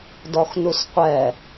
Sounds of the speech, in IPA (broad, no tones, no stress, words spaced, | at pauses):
dɔxnusqʷɛ